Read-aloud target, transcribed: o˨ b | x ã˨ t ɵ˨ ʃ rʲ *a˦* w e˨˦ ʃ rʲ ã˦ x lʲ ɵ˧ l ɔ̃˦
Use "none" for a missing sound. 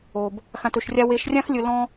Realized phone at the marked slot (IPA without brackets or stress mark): a˧